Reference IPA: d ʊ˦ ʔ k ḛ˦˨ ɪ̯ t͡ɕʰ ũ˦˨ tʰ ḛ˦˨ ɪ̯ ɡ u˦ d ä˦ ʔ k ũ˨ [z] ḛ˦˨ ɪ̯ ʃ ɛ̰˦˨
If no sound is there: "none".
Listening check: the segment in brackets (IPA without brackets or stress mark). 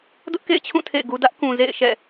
z